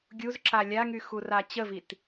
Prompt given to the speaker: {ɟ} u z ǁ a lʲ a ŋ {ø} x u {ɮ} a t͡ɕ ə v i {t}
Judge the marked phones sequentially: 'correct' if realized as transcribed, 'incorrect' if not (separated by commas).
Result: incorrect, incorrect, incorrect, correct